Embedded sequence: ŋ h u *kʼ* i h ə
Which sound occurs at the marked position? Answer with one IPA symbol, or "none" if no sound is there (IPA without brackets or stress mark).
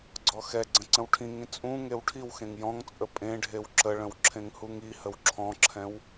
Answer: ŋ